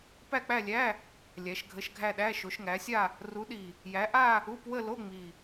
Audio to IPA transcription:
p æ˥˧ k͡p æ˥˧ lʲ æ˧˥˧ | lʲ æ˨˦ ʃ ɡʱ ə˧˥˧ ʃ ɡʱ æ˥˧ ɗ æ˧˥˧ ʃ o˨˦ ʃ ŋ æ˨˦ sʲ a˥˧ | r u˨˦ ɗ i˨˩ | j æ˨˦ ʔ a˥˧ | u˧˥˧ p w ə˥˧ l o˧˥˧ ŋ͡m i˨˩

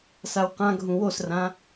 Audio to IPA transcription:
s a w q ã ɡʱ ũ w o s r ã

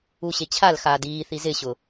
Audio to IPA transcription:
u ɕ e t͡ɕʰ a l x aː d iː θ i z ɪ ɕ ʊ

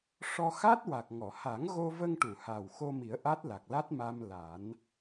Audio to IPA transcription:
ʂ ɔ˧ x a˦˥ t̚ w a˨˩ k̚ ŋ ɔ˨˩˨ h a˨˩˦ ŋ ɣ o˧ v ə˧ ŋ ʈ u˨˩˨ h a˨˩ w x o˧ m i˨˩˦ ə̯ ʔ a˦˥ t̚ l a˨˩ k̚ l a˦˥ t̚ m aː˧ m l a˨˩˦ n

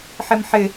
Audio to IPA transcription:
ħ e m ħ ɪ

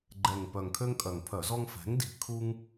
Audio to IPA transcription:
ɡ͡ǃ ɛ˨˩ ŋ p œ˨˩ ŋ kʰ ø˦ ŋ kʼ œ˨˩ ŋ pʰ œ˧˩˧ z ɔ˦ ŋ f ɛ̤˩˥ ŋ d i̤˨˩ kʰ u˦ ŋ

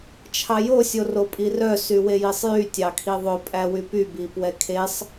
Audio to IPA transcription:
t͡ʃʰ ɑ j o sʲ o r o pʼ i r œ s y w e j i sˤ j y tʲ ɑ kʰ i ðˤ ɵ pʼ æ w y p y b i p w ɛ kʰ e sˤ

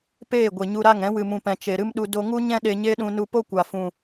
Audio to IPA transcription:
p eː˦˨ ɡʷ e˨ ɲ u˧ ɾ a˦˨ ŋ ɛ̃˨˦ w ɨ˨ m ũ˨ p ɛ̃˨ t͡ʃ e˨ ɾ ɨ˦ m ɗ u˧ d o˧ ŋ u˦ ɲ ɛ̃˦ ɗ e˧ ɲ e˦ ɗ ũ˧ n u˧ p o˦ kʷ a˨ f ũ˨

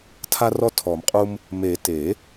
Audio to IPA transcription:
tʰ a˦ r ɔ˦ tʰ ɔ˨˩˦ m qʼ u˦ m | m e˨˩˦ t e˨˩˦

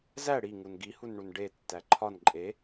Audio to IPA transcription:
z æ ɽ i ŋ u n ɡ i h u n ɳ u n ɖ e tː æ ǃʰ ɒ n ǃʼ e

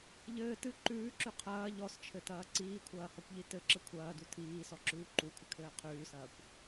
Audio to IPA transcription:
ʎ ɘː t ɨ ǃ ʉː ǁ ʉ qʰ ɐː ʎ ɔ s t͡ʃʰ ɘ t ɐː ǀ iː kʷʰ ɐː h ɔ kʷ ʎ i t ɘ ǁ ɘ kʷʰ ɐː d u tʰ iː s ɔ ǁ ʉː ǃ u kʷʰ ɘ kʰ ɘː qʰ ʉː s ɐː kʷ

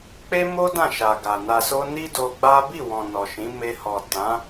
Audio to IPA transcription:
k͡p e˦ m o˦ d ã˦˨ ʃ a˨ ɡ a˨ n a˨ s o˧ n i˦ d o˧ ɡ͡b a˦ b i˦˨ w ɔ̃˨ n ɔ˨ ʃ ĩ˨˦ m e˧ h ɔ˨ t ã˨˦

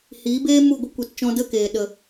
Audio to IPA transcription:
h iː˨˦ b eː˦ m u˦˨ ɡʷ ə˦ kʷ e˨ t t͡ʃ ɔ̃˧ d ə˦˨ k eː˨ ɗ ə˨

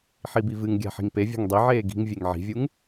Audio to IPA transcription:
ħ i b i v ɨ ŋ ɡʲ a̤ ħ i̤ ŋ p e vʲ a̤ ŋ dˤ i ʕ eː ɡ i̤ ŋ vʲ e ŋ ʕ i̤ vʲ u ŋ

